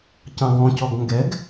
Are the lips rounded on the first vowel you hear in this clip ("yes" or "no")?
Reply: no